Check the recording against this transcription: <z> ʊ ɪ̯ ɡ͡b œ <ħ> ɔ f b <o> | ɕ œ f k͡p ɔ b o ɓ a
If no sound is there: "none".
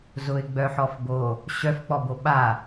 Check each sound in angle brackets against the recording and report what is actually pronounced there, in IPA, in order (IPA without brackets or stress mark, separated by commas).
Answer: z, ħ, o